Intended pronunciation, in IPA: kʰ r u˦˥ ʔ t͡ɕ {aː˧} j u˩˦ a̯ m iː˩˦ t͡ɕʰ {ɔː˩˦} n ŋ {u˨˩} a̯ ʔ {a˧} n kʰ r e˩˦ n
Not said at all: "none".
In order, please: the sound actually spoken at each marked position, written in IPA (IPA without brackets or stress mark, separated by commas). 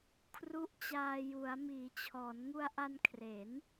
aː˧, ɔː˩˦, u˧, a˧